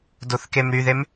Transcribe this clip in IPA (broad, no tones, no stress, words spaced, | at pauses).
doθkemɾyðem